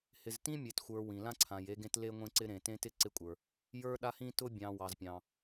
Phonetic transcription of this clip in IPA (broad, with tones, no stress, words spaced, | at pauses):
hɪ˨ztĩ˦mʲe˨txʷə˞˨ wĩ˨lã˦ ǀʰã˨j e˦ɡẽ˦t le˦ŋʷẽ˦ǀɪ˦ ɾẽ˨tẽ˦tɪ˦ ǀɪ˦kʷʼə˞˨ | jə˞˦ɗa˦hĩ˦ tʊ˦ bʲɑ̃˨ wɑ˨zpʲɑ̃˨